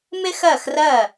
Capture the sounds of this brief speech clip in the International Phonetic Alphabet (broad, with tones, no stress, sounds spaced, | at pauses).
m ɪ˥ x ɜ˥˩ x r ɜ˥˩